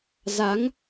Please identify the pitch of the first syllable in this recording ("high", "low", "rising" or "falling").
rising